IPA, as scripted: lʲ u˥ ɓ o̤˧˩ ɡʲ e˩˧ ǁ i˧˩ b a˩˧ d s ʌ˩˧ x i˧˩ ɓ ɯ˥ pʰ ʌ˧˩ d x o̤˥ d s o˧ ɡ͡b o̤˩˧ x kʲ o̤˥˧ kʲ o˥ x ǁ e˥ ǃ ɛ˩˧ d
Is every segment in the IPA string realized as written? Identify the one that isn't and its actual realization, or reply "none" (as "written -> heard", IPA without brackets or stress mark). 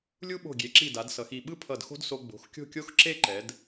b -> d